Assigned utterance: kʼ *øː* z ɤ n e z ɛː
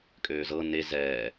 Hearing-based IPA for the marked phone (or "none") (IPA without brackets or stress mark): øː